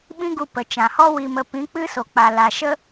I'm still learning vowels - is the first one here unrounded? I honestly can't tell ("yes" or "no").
yes